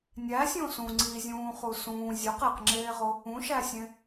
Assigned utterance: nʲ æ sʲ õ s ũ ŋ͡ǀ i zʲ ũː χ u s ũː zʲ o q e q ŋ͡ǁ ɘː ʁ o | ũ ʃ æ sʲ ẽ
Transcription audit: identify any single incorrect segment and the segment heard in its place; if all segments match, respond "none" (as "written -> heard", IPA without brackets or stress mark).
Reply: ɘː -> eː